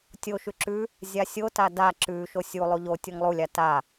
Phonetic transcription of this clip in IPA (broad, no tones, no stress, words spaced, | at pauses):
tʲo ʃʉǁʉ | zʲasʲota da ǁʉ ʃosʲu lˠuʎo tʲoŋlˠulʲa ta